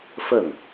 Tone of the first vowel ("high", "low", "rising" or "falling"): falling